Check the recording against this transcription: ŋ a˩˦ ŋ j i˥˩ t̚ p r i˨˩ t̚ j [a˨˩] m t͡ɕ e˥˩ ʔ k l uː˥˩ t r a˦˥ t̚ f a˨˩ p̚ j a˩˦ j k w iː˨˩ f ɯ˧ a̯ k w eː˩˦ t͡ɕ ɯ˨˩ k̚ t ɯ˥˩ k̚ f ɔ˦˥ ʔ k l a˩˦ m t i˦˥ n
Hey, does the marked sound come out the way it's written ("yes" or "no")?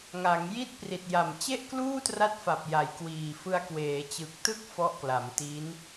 yes